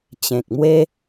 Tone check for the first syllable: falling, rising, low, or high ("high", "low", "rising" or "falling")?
low